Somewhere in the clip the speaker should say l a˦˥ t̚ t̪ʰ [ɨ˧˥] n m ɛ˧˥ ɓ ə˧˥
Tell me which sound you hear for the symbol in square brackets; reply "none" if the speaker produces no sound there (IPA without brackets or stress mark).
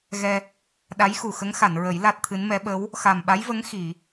ɨ˧˥